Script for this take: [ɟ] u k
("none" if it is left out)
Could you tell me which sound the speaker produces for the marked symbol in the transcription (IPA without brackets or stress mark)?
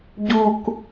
ɟ